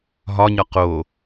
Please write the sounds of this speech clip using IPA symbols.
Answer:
ɦ ɒ ɲ ɒ q o

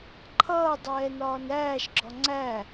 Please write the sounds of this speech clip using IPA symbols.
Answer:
ǃʰ ʌː dˤ ɛː n ɒː n æː ʃ ɡ͡ǁ ɒ ŋ͡ǀ æ

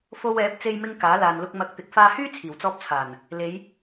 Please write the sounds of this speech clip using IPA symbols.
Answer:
f o˧ w ɛː˨˥ p̚ t͡s e˧ j m ɪ˧ ŋ k aː˨˥ l aː˨ n l ʊ˧ k̚ m ɐ˨ k̚ t̪ ɪ˨˥ k̚ f aː˧ h yː˥ t͡sʰ iː˨˩ w t͡s ɔː˧ p̚ t͡sʰ aː˨˩ n | l e˨˧ j

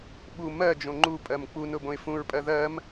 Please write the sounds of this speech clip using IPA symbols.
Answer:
ɓ u m ɜ d͡ʒ õ ŋ͡ǃ u pʼ ɜ m k͡p u n ʊ b õ ɪ̯ f ũ ɹ pʼ ɜ ð ɜ m

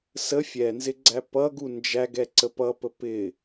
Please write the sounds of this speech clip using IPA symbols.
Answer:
s ə fʲ ɛ n z ɪ ɡ͡ǀ æ p ʌ ɡ u n d͡ʒ æ ɡ ɛ ǀ ə p ʌ p ə p ɪ

